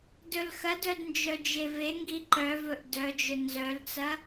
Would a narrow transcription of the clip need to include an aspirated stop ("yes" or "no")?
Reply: no